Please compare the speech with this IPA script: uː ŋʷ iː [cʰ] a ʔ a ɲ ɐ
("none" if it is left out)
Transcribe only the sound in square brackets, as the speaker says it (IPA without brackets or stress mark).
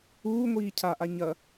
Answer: cʰ